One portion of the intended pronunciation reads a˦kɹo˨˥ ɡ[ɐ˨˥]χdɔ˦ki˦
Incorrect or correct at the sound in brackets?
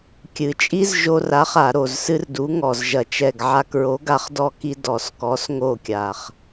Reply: incorrect: a˨˥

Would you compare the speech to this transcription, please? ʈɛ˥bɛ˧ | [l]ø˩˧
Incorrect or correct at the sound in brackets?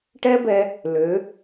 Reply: correct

